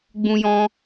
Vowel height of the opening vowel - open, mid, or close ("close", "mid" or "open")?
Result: close